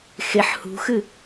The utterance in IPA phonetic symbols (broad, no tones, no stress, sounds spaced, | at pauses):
x e ħ h ṳ x ɨ